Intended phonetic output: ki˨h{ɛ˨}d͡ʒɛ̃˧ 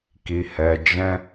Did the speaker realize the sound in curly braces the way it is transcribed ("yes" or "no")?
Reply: yes